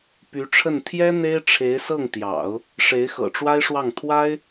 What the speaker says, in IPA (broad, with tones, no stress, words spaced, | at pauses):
py˧˥ʈ͡ʂʰə˥˩n t̪ʰjɛ˥ n̪e˥ɪ̯ʈ͡ʂʰe˧˥ɪ̯sɤ˥˩ŋt̪jɑ̰˨˩˦ʊ̯ | ʂe˧˥ɪ̯xɤ̰˨˩ʈ͡ʂwa˥ɪ̯ʂwɑ˥˩ŋ t̪ʰwa˥ɪ̯